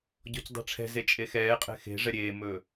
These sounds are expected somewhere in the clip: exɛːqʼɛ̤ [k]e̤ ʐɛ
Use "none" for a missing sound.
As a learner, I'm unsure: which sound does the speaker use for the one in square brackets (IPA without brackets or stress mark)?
x